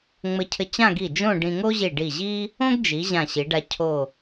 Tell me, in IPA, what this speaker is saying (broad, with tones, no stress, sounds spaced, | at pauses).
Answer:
ŋ͡m ɘ˧ cʰ ɘ˧ t͡ɕ ã˥˧ ɡ i˧˩ d͡ʒ õ˥˧ ɖ ĩ˧ ŋ o˥ ʑ i˧˩ ɖ i˧˩ ʑ i˥ | õ˥ ɡ d͡ʒ i˩˧ ʑ ã˧˩ ɕ i˩˧ ɖ a˧ cʰ o˧˩